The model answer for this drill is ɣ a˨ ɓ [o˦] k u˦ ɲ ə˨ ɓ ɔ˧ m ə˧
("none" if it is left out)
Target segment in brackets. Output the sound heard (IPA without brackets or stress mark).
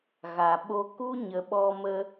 o˦